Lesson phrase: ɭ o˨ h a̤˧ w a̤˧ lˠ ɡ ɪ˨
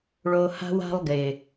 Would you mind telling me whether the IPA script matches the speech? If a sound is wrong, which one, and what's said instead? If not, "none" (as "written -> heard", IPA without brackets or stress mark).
none